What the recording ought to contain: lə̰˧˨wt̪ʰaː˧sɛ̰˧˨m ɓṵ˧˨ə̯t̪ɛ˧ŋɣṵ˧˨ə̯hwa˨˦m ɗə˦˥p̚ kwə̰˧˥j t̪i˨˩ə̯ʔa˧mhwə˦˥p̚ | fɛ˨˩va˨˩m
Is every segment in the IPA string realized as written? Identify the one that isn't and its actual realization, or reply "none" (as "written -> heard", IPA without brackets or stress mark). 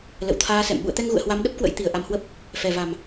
none